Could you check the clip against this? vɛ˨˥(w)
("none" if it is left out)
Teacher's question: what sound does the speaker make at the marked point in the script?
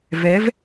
v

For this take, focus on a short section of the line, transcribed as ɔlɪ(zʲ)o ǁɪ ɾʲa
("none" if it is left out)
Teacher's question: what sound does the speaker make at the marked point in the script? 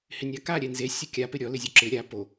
zʲ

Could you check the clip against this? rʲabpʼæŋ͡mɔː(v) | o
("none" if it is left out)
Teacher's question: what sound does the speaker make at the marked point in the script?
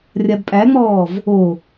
v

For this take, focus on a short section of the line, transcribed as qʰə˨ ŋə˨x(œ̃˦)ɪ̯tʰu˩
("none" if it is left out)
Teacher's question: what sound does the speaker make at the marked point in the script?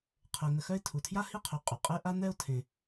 œ˦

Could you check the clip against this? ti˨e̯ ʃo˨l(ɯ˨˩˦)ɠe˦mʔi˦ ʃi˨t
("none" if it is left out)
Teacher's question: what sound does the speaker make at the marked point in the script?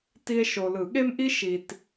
ɯ˨˩˦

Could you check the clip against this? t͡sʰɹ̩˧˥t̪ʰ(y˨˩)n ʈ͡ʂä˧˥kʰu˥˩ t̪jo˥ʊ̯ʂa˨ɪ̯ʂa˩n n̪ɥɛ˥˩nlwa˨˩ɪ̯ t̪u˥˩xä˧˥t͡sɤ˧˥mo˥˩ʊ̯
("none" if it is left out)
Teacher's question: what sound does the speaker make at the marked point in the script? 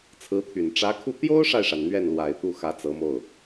y˨˩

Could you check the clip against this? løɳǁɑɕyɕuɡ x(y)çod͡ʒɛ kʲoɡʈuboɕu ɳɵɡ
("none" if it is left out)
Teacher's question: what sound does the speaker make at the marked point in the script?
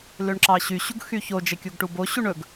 y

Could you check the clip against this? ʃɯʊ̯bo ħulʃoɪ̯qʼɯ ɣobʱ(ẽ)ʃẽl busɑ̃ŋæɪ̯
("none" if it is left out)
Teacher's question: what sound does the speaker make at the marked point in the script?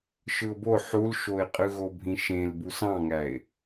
ĩ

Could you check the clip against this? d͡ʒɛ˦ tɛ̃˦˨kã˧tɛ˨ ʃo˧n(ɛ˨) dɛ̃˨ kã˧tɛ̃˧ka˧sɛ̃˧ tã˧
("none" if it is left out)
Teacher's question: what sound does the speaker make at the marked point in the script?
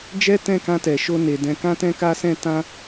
e˨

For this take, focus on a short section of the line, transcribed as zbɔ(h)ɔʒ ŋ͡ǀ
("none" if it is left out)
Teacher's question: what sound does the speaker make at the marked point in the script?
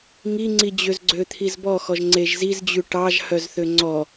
x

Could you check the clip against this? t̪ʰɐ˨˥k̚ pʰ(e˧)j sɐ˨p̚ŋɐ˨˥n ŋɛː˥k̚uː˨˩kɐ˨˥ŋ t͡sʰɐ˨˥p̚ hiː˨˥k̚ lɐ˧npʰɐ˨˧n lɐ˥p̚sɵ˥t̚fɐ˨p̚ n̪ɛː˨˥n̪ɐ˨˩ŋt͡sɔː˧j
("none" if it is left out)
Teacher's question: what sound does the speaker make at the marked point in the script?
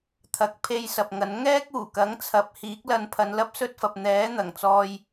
e˧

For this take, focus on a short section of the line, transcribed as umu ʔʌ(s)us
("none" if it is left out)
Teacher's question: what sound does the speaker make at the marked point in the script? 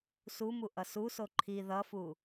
s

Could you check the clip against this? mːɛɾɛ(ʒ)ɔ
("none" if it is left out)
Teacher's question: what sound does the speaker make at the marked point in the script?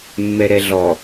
ɮ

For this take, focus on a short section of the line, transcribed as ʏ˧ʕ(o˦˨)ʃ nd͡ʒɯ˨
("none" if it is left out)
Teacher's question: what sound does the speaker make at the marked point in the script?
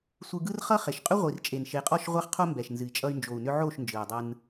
o˦˨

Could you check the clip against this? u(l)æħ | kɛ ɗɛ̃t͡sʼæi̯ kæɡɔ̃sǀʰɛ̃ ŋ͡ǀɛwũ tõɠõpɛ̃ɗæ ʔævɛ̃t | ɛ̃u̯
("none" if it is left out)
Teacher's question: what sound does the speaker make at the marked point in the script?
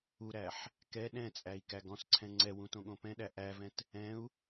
ɾ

